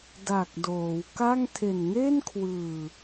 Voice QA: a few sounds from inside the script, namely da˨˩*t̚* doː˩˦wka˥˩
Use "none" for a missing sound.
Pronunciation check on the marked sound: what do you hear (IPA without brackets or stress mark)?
k̚